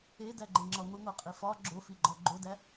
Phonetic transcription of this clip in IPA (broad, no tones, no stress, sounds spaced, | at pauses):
e d æ ɡ͡ǃ e ŋ͡ǁ ɒ ŋʷ i ŋʷ æ qʼ i f ɒ ɡ͡ǁ o f i ɡ͡ǃ ɒ ɡ͡ǃ o d æ